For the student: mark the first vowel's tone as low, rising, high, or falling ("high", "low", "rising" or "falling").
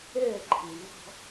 falling